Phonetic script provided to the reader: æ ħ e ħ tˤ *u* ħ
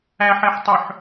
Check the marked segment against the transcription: incorrect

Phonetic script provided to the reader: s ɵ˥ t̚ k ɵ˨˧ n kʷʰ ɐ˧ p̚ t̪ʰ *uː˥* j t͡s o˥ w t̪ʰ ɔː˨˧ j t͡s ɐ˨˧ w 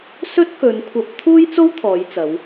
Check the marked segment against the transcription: correct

